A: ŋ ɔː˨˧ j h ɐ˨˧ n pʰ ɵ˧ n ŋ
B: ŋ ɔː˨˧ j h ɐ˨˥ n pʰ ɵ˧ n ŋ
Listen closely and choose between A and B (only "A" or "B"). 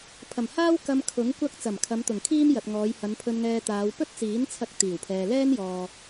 A